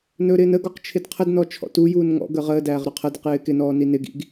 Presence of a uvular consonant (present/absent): present